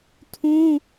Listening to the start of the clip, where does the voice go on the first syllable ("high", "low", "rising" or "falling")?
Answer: high